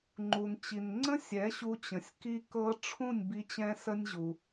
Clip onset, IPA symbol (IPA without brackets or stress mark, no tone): ŋ͡ǃ